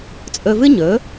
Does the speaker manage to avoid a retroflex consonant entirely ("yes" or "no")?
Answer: yes